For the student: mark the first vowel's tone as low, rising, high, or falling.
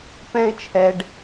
high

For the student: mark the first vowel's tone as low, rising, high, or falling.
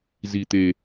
low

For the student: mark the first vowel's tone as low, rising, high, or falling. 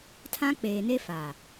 high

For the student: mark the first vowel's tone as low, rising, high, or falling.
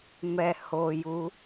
low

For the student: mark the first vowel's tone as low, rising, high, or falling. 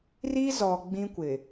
high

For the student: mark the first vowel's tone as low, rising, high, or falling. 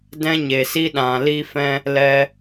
high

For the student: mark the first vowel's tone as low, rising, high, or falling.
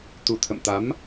low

